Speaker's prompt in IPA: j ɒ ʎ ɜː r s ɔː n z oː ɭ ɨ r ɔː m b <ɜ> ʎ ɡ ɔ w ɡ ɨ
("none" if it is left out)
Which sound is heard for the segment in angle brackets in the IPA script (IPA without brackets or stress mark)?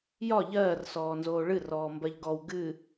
ɜ